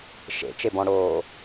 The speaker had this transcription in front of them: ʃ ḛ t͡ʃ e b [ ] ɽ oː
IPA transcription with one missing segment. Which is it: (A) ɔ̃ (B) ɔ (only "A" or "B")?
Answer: A